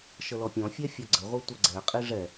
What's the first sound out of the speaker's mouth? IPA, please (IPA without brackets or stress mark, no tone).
ʃ